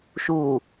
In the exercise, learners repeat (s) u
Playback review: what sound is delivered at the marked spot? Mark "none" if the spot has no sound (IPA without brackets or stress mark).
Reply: ʃ